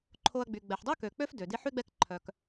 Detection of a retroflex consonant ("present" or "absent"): absent